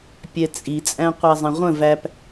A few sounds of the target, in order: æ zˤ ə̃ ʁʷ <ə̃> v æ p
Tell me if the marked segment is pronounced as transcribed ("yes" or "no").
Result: yes